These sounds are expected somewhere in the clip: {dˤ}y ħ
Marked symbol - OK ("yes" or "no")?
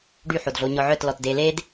no